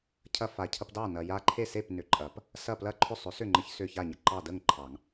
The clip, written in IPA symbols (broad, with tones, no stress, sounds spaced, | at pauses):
cʰ ɐ˦ f a˨ cʰ ɐ˦ p d ɑ˥˨ n ɐ˨ j a˦ ǃʰ e˥˨ s e˥˨ p n ʏ˨˩˦ ǃʼ ɐ˨˩˦ p | s ɐ˥˨ p l ɐ˥˨ ǃʰ ʏ˥˨ sˤ ʏ˨˥ s ʏ˥˨ ŋ͡ǃ ə˦ ç s ʏ˥˨ ç a˥˨ ɲ ə˨ ǃ ɑ˥˨ d ə˥˨ ŋ ǃʰ ɑ˨˩˦ ŋ